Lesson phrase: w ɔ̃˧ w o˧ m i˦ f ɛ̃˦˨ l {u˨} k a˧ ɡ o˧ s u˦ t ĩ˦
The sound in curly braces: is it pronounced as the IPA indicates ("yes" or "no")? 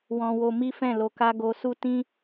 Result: no